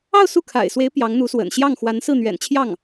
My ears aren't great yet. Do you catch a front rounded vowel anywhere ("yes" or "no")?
no